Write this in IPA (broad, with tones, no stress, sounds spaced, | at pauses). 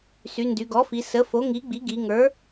s y˩˧ n d y˩˧ ɡ ɔ˩˥ f i˩˧ s ə˩˥ f o˩˥ ŋ i˩˥ ɡ͡b i˩˥ ɡ i˩˧ ŋ ə˞˩˥